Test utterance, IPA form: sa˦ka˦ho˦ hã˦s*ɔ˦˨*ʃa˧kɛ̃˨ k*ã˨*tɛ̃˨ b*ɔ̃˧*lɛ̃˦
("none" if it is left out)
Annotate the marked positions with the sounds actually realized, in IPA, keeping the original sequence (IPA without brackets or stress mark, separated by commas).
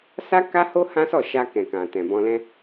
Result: ɔ˦˨, ã˨, ɔ̃˧